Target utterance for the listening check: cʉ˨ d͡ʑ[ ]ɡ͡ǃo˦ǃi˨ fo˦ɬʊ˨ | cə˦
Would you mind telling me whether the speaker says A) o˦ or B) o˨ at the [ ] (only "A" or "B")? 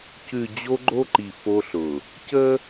A